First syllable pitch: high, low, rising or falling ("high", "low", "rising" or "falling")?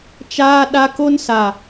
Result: high